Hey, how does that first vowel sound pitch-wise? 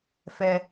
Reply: high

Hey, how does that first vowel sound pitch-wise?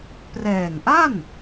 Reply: low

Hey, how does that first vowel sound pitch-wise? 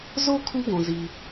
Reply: high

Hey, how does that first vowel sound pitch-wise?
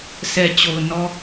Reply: low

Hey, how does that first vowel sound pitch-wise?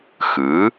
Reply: rising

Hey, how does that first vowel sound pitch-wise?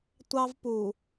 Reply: high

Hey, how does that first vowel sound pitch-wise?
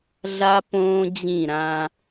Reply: high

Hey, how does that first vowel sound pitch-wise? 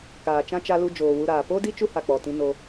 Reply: low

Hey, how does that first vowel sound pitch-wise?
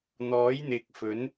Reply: rising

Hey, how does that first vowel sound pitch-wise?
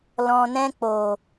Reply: low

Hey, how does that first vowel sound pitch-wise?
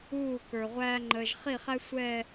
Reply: falling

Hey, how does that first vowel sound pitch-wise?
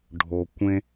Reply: low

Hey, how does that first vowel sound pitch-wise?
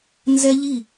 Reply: high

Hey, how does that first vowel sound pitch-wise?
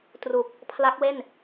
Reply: low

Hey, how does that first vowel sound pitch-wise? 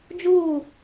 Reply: falling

